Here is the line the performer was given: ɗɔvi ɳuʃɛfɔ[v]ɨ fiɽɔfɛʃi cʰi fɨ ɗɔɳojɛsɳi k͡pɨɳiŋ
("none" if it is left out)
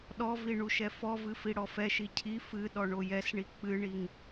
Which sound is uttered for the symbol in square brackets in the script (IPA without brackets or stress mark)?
v